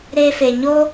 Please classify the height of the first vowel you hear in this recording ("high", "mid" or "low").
mid